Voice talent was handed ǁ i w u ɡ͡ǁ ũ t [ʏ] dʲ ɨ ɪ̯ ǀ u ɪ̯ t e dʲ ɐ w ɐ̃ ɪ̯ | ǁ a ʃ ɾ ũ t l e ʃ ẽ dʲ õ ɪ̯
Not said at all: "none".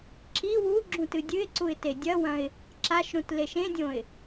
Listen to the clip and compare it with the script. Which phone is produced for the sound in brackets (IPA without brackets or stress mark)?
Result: ɨ